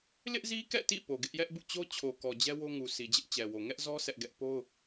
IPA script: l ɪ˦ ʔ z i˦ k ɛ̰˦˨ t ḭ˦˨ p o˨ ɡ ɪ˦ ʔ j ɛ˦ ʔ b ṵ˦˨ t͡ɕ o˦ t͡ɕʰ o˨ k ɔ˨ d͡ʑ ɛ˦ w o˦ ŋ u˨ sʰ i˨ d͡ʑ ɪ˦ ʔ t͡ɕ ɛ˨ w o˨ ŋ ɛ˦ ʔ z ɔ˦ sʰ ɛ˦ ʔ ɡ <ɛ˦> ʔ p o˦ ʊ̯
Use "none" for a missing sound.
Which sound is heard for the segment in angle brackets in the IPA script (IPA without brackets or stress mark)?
ɛ˦